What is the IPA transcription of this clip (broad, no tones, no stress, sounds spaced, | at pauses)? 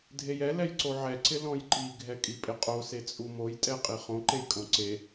dʱ e j ɛ l ɛ j ǀ o ʕ ɛ ǀ ɪ l ɔ̃ j ǃ i ɡʱ ɛ kʼ i pʼ ɪ qʼ o s e t͡sʼ u m o j tʼ ɛ qʼ i χ õ ǃ e j kʼ õ ǀ e